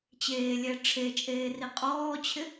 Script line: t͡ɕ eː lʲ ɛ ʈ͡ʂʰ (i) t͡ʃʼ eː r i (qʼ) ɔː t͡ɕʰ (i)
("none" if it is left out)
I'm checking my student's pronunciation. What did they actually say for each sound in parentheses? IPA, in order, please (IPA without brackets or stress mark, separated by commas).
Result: e, qʼ, ɪ